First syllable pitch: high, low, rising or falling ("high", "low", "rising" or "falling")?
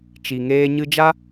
low